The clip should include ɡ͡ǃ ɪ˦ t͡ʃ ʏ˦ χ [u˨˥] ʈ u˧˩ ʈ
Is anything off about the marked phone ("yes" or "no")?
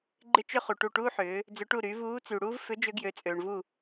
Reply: yes